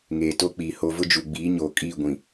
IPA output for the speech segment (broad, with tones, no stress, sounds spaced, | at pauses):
ŋ eː˨ t o˦ k͡p iː˨ h o˦ v ʊ˦ d͡ʒ u˨ ɡ͡b iː˨˦ ɲ oː˨ kʼ iː˦˨ ɡʷ ĩ˨